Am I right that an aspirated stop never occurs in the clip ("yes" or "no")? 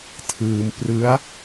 no